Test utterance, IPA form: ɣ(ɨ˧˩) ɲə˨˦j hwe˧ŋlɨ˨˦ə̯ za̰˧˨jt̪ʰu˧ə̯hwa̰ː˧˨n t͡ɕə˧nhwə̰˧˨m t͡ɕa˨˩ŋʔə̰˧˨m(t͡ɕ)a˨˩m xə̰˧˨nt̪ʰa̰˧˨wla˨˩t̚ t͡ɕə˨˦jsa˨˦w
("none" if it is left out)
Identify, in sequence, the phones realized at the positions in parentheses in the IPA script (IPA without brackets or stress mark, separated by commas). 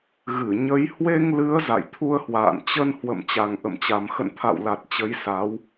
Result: ɨ˧˩, t͡ɕ